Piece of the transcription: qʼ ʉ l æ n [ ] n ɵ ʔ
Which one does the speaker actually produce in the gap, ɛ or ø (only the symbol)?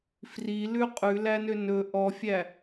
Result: ø